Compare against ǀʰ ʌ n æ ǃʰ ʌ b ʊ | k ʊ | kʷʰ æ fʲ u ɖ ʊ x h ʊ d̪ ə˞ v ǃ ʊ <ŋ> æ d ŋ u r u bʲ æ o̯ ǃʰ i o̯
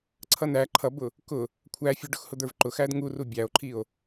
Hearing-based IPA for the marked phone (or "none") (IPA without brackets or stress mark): x